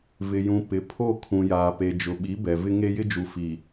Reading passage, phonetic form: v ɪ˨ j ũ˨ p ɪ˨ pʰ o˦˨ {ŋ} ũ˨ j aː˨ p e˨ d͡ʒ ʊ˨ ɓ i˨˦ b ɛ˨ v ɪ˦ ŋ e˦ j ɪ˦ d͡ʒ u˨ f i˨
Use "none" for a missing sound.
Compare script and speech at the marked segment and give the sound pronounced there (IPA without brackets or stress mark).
kʰ